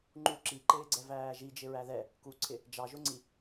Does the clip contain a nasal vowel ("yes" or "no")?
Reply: no